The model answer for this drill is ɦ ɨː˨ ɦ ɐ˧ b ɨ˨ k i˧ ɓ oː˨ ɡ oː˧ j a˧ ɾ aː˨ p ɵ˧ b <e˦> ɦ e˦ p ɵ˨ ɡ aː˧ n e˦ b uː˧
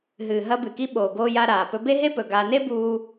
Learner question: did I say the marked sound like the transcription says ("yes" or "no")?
yes